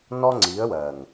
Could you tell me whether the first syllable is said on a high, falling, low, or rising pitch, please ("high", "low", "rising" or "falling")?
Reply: high